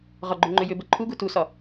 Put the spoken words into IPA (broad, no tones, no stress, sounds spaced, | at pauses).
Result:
ʁ ɒ ɡ͡ǃ ʏ ŋ͡ǃ ʏ j ʏ b ə ǃʰ u ɡ u t u s ɒ